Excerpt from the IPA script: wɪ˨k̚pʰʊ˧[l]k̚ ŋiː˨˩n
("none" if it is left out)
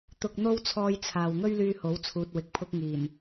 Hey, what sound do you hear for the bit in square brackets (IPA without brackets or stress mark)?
none